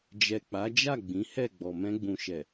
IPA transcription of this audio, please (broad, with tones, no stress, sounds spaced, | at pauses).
d͡ʒ ɛ˨ k͡p a˨˦ d͡ʒ a˦˨ ɡ͡b ĩ˨˦ h ɛ˦˨ ɡ͡b ɔ˨ m ɛ̃˧ ɡ͡b ũ˨ ʃ ɛ˨